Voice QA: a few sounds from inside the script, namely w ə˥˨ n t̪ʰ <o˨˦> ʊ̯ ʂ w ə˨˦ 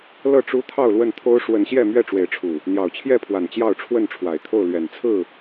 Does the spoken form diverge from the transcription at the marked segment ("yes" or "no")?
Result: yes